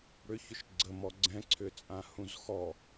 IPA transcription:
ɽ ʏ ç ʏ ʃ ɡ͡ǀ ə m ɔ ɡ͡ǀ ɛ̃ ǀʰ ʏ t͡sʼ ã h ũ z x ɔ

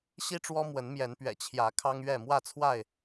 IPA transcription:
ɕ i˦ ʈ͡ʂ w ɔ˦ m w ə˨˦ n m j ɛ˨˦ n p ɥ ɛ̰˨˩ t͡ɕʰ j ä˨˦ kʰ ɑ˦ ŋ ɥ ɛ˥˨ m w ä˥˨ t͡sʰ w a˥˨ ɪ̯

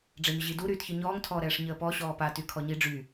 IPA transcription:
ɖ͡ʐ ɛ ɲ ə ʑ i d u ɾ yː t ç ɨ ɲ ɔː ŋ tʰ ɔː ɾ ɛː ʂ ɲ əː p ɔ ɕ ɔː p a t y kʰ ɔ ɲ i ɖ͡ʐ y

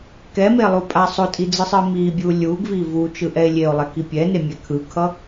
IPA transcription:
k ɛ m e lˠ u pʼ a sˤ o tʼ i d͡z ɯ sˤ ɯ m i bʲ u lʲ u ɡ v i v u t͡ʃ ɯ ʔ ɛ e̯ lʲ e o̯ lˠ ɛ k i pʲ ɛ n e mʲ ɛ kʰ ɯ kʰ ʌ

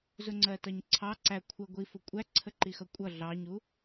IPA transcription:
z ʊ ŋ͡ǀ ɜ t ʌ ɲ ǀʰ ɑ ǀ æ kʷʰ ə ɡʷ i f ʊ kʷʼ æ ǀʰ ə ǃ i x ʌ kʷʼ ʌ ɮ ɑ ɲ u

